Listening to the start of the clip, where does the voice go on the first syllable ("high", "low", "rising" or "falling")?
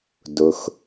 low